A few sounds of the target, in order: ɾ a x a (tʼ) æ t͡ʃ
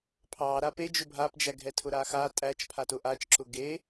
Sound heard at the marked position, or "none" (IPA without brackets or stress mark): tʼ